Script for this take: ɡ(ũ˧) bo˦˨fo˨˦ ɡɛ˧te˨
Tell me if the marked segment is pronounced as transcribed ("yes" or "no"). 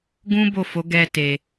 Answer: no